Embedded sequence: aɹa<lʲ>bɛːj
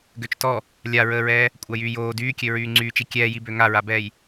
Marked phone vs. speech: incorrect: none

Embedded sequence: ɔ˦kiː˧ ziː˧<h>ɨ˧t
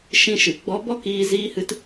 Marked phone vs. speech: correct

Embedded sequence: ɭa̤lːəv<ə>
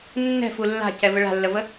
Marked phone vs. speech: correct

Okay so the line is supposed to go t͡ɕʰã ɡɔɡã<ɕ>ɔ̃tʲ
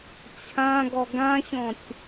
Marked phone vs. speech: correct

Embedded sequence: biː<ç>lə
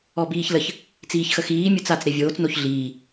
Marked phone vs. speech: correct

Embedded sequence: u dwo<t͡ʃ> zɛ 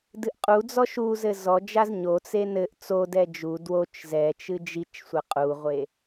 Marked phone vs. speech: correct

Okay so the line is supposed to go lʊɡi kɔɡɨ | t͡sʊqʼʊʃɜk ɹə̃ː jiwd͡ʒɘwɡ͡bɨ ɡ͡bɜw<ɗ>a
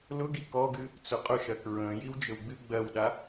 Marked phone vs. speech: correct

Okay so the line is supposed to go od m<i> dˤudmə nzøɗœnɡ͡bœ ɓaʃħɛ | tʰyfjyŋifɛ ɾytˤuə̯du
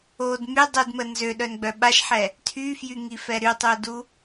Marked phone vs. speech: incorrect: y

